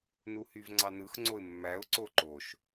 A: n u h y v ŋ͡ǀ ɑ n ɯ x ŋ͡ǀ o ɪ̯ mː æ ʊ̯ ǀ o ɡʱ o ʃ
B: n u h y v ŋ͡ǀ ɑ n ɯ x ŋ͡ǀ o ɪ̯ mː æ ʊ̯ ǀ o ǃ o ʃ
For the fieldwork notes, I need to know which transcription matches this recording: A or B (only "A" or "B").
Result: B